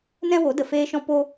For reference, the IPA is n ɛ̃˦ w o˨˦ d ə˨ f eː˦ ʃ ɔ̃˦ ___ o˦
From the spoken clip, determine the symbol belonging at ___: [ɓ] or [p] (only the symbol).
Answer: p